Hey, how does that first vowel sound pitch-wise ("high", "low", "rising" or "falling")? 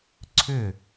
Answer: falling